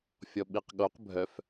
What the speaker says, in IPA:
fʲ ɔ ɓ i q ɠ o q bʱ œ f

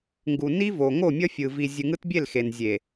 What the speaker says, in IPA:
ŋ ɡ u˨ n i˦ v o˨ ŋ o˦˨ mʲ ʌ˦ fʲ ɯ˨ v i˨ zʲ ɯ˨ ŋ ɯ˦ t bʲ e˦˨ l x e˨ n zʲ e˨

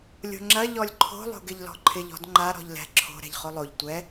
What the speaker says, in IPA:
lʲ o̤ ŋ͡ǁ ɐ ʎ ɔ lʲ ǃʰ o̤ lˠ o̤ ɡ ɪ ʎ l ɔ̤ ǃʰ ɪ ʎ ɔ̤ d ŋ͡ǃ a ɾ ɔ̤ ʎ l ɛ̤ ǁʰ o̤ ɾ ɛ̤ ʎ χ o lˠ o ʎ tʷ ɛ

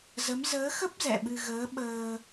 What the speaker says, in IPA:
z ə˨˦ m z əː˨˦ x ə˦˥ p̚ z ɛ̰˧˨ ɓ ɨ˧ ɣ əː˨˦ ɓ əː˧

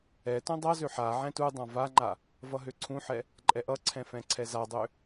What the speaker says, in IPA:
ɛ t ũ dˤ ʌ z ø ħ a ʕ ɛ̃ t u dˤ ã v a ŋ͡ǃ a | v ʌ ɦ ø ǀʰ ũ ħ ɛ | ǃʼ ɛ ʔ ʌ ǀʰ ɛ̃ f ɛ̃ ǀʰ ɛ z a dˤ ø

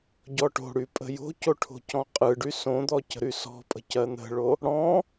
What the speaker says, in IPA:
ɟ ɔ ʈ o̤ ɽ y pʼ ə̤ j o̤ c o ʈʰ o̤ c ɔ̃ qʼ ɯ ɖ y s õ d̪ ɔ c ə̤ ɾ y s ɔ̤ pʼ ə̤ c ɜ n̪ ə̤ ɭ o | ɽ ɔ̃

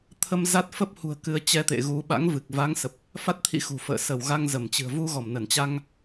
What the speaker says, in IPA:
t̪ʰ ə˧ m z a˦˥ t̚ f ə˦˥ p̚ h ṳ˨˩ ə̯ k ɨ˨˦ ə̯ t͡ɕ ɛ˧ t̪ ḛ˧˨ ɣ u˧ ɓ a̰˧˥ ŋ v ɨ˨˩ k̚ v a˨˦ ŋ s ə˨˩ p̚ | f a˦˥ t̚ t̪ʰ ḭ˧˥ x ṳ˨˩ f ə̰ː˧˨ s ə˧˩ w ɣ a˧ ŋ z ə˧˩ m t͡ɕ ɨ̤˨˩ ə̯ v u˧ ɣ ɔ˧˩ m n ə˧˩ n t͡ɕ a˧ ŋ

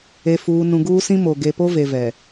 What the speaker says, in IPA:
e˨ f uː˨ n ũ˨ ɡ uː˦ s ĩ˦ m o˨ ɡ e˨ p o˦ v e˨ v ɛ˨

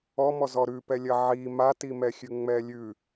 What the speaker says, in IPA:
ɔ m ɔ z ɔ ɾ ʉ p ɛ lʲ ɐ ʕ i m a t i m ɛ xʲ ʉ ŋ͡m ɛ lʲ ʉ

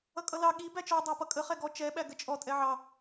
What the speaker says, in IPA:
ʌ kʼ ʌ l ɑ ɠ i b æ t͡ʃ ɔ dˤ ɑ p ʌ kʼ ə χ ɛ ɡ ɔ t͡ʃ ɛ ɓ æ ɡ ə t͡ʃʼ ɔ tʼ ɛ ʕ ɑ

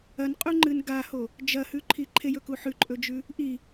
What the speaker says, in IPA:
ɐ n qʼ u ŋ͡ǃ ɨ n ɡ a h o | d͡ʒ ɐ h ʉ ǃʰ i ǃʰ e j ɵ k u ħ ʉ ǃʼ ɵ d͡ʒ ʉ | ʔ i

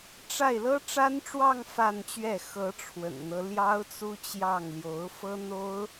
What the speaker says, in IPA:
ʈ͡ʂ a˥˩ ɪ̯ l ɤ˥ ʈ͡ʂ a˥ n ʈ͡ʂ w ɑ˥˧ ŋ f a˥˧ n t͡ɕ ɥ ɛ˥˩ x ɤ˧˥ ʈ͡ʂʰ w ə̰˨˩ n n̪ ɤ˦ l j ɑ˥ ʊ̯ t͡s u˥ t͡ɕ j ɑ˥˩ ŋ l j o˧˥ ʊ̯ f ɤ˥ n̪ o˥ ʊ̯

